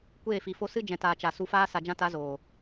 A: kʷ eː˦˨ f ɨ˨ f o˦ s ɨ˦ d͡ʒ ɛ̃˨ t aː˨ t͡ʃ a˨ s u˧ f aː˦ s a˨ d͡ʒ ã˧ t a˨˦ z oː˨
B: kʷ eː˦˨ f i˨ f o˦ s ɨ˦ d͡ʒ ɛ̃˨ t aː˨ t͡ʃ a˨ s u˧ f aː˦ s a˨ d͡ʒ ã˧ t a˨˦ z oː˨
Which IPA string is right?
B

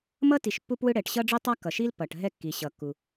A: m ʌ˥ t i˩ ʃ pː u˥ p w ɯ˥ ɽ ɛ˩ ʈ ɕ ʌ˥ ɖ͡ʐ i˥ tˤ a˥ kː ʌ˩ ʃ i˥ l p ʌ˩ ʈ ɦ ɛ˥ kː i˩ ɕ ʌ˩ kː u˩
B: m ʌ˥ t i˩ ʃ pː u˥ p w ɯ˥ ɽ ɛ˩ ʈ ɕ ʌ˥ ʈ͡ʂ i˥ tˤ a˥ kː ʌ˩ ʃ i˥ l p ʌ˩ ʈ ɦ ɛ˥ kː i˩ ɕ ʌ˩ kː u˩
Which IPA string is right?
A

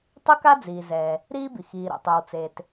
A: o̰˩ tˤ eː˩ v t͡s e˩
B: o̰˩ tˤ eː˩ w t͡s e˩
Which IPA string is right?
B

